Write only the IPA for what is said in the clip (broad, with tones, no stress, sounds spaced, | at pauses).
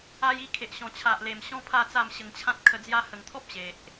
a˧ j i˧ kʰ e˨ ʔ ɕ ɔ̃˨˩ t͡ɕʰ a˨ ʔ l e˨˩ m ɕ ɔ̃˦ pʰ a˥˧ t͡s a˥˧ m ɕ ə˧ ŋ t͡ɕʰ ã˦ t̚ kʰ ə˧ d͡z j a˧ h ə˨˩ ŋ t̪ʰ ɔ˦ p̚ ɕ e˨ ʔ